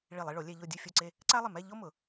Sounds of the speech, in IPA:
ɭi˧˩lˠi˧ɭo˩˧ lʲɛ˧ ʎo˥˧dʲu˥˧fʲo˥˧ǀe˥˧ | ǀa˥lˠɪ˧˩mɛ˥˧ ʎo˥mʊ˩˧

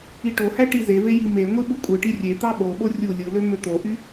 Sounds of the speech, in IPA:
iʈohæ ʈizeve jimeŋʷi ɓukʷʼɯʈi rʲet̪ɑ ɓoɓo rʲu lʲɯlø møt̪oʔy

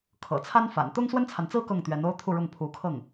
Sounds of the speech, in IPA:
kʰɤ̰˨˩t͡sʰa˥nfa̰˨˩n t̪ʊ˥ŋswə˥nt͡sʰa˨nt͡sɹ̩˥ kɤ˥˩ŋt̪ɥɛ˧˥n o˥ʊ̯t̪ʰu˥˧ɻʊ˥˩ŋ pʰu˧˥kʰɤ˥˩ŋ

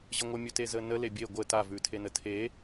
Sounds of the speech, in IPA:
ʑəŋʷəmʲʉte zənə lebʲe ɡʷə tavʉtʰenə tʰe

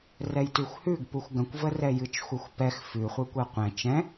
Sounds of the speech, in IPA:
rɛjtʉxʷhʉɡ puxʷɡə̃kʷvə rɛjɨt͡ʃxʷə˞xʷpɛx fʉχʷɨ kʷɛqʷɛ̃ t͡ʃɛ̃

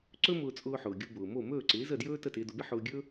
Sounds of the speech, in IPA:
ǀɵ˥mʊː˧t͡sʼʊː˧ħʊː˩ ɡʲu˧bʊː˩mo˥˩ mɵː˥˩ǀɪː˩˥zə˥˩djɵː˥ tə˥˩tɪː˧dʊ˧bɪ˥ ħʊː˧ɡʲɵ˥

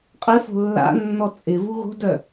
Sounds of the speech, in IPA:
qʼɪfo̤ lːa̰nːɔ t͡sʼɪvu ɣo̤dœ

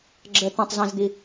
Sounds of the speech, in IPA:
ɡ͡ǁə t̪ə̃tˤzɛ̃zd̪i

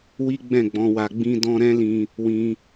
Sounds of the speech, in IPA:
wi˦ ɡ͡bɛ̃˦˨ɡ͡bɔ̃˧wa˧ ɡ͡bĩ˦dɔ̃˦ ɾɛ̃˦lĩ˧ | wĩ˧

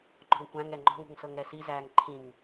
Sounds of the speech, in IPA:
ŋ͡ǃɔ̤ŋkʷæ̃ŋɛ ŋ͡ǃɔ̤ŋṳŋ sɤŋɾɛsizæːŋ ǃʰĩŋ

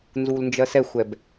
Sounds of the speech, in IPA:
nzulnd͡ʒɜsɛxʷɛb

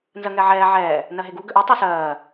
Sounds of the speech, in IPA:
nzɜŋɛʕɛː ʕɛː | nɜɦeɡu ɡøʔu tˤə˞sɜː

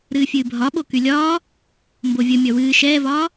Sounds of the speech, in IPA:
ɾɨːfʲɨːbʱɒɓo kylʲɒː | mbovʲə mʲɒwɨː ʃɛːvɒː

